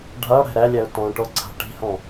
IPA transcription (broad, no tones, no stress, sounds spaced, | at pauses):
ɖʱ a ɽ æ̤ ɾ æ lʲ æ ʊ̯ t ɔ̃ ʈ ɔ ǀʰ a̤ ʈ i̤ h ɔ̃